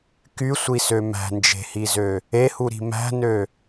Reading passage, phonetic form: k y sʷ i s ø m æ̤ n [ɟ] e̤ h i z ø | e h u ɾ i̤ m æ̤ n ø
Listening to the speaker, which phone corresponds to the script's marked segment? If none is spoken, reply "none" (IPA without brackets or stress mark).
d͡ʒ